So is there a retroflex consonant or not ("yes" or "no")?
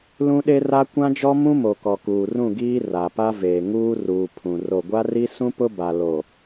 no